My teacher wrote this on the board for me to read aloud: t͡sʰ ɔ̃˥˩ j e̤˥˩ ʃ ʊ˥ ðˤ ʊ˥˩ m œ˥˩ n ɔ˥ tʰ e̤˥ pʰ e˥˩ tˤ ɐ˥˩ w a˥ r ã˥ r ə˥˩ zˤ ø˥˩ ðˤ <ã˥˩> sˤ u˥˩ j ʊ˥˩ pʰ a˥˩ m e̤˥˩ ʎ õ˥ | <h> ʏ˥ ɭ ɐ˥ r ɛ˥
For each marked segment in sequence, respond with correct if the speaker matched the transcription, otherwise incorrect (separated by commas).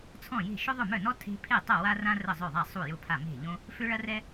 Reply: incorrect, incorrect